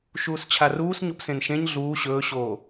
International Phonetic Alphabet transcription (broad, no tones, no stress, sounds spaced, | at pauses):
ʃ uː s t͡ɕʰ a r uː s ɲ o p s ẽ n ʃ ẽ ɲ ɮ uː ɕ ɵː ɕ oː